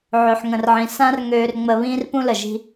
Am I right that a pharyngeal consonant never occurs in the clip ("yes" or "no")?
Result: no